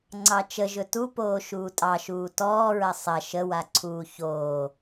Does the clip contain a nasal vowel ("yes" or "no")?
no